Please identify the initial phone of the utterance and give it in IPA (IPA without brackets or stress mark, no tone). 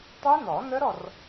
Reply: tˤ